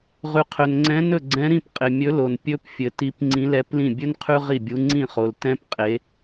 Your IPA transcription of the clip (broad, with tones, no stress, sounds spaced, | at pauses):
ʁ ʉ˨ qʰ ɵ˨ n ŋ͡ǀ ɛ̃˧˥ n ɵ˥˩ ɡ͡ǀ ɛ̃˧˥ ɾ ĩ˥˩ p qʼ ɪ˨ mʲ ɵ˧˥ l o˨ n pʲ ɵ˧˥ p fʲ ɘ˨ t i˧˥ p ŋ͡ǀ ĩ˧˥ l ɛ˧˥ p l ĩ˥˩ bʲ ɵ˥ n qʰ ʉ˥ ʁ i˥˩ bʲ u˧˥ ŋ͡ǀ ĩ˥˩ χ o˨ l t ɛ̃˥ p qʼ e˧˥